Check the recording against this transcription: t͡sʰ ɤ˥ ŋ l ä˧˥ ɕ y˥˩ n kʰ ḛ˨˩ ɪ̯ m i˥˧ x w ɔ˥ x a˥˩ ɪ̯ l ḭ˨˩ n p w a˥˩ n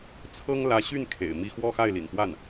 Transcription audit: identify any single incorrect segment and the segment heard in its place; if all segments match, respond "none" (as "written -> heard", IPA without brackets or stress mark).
ɔ˥ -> ɔ˥˧